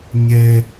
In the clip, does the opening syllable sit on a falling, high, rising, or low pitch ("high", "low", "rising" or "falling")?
high